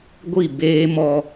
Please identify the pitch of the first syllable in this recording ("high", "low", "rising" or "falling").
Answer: falling